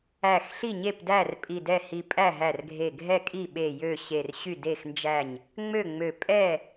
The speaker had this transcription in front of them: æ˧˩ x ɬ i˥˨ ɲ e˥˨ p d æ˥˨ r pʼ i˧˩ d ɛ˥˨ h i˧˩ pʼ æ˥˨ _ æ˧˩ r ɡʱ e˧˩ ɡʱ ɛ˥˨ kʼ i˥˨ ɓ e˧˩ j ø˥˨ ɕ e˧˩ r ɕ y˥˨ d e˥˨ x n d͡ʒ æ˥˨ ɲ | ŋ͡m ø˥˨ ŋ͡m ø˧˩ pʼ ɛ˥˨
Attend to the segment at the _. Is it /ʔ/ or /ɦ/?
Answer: ɦ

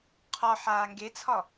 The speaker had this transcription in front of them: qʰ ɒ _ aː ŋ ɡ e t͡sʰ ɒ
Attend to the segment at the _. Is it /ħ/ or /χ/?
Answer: ħ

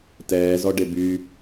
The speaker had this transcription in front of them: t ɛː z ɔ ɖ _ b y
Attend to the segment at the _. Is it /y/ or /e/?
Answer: e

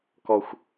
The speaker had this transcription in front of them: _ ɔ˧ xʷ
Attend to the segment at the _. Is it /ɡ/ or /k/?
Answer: k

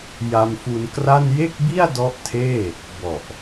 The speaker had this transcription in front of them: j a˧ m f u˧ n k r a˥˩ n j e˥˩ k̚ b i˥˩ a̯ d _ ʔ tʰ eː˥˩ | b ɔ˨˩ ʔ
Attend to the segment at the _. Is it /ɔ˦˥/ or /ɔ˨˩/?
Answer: ɔ˦˥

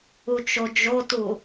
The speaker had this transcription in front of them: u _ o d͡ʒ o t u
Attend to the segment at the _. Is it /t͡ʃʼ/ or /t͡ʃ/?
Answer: t͡ʃ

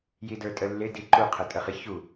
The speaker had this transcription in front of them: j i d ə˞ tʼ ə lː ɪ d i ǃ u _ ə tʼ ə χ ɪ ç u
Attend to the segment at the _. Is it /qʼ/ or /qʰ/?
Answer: qʰ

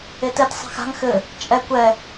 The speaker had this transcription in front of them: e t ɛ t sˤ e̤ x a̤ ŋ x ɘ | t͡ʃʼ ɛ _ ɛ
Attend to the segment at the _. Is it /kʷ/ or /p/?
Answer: kʷ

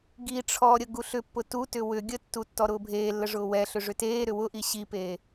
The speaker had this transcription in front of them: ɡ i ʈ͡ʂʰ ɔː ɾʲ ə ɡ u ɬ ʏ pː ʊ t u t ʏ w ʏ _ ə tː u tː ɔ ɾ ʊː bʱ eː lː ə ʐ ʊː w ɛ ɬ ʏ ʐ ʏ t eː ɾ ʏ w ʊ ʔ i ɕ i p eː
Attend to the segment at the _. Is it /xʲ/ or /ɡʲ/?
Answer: ɡʲ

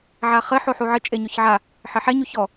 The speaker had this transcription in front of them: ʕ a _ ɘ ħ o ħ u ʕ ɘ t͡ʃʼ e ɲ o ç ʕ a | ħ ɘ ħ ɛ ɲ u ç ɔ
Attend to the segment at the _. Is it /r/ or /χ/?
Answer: χ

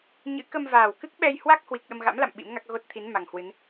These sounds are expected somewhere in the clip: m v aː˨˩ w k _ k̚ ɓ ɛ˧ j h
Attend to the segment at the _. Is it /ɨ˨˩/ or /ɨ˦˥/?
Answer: ɨ˦˥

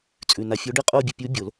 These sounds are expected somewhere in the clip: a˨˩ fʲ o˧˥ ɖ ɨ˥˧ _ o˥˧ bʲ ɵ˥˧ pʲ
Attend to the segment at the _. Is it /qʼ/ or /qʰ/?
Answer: qʼ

